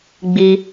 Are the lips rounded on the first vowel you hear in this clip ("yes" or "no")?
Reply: no